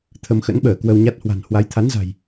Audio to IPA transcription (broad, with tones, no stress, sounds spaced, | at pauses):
t̪ʰ ə˧ m x ə̰˧˥ n ɓ əː˧˩ k w ə˧ w ɲ a˦˥ t̚ h w a̤˨˩ n h w a˨˦ j t̪ʰ a˨˦ n z a̤˨˩ j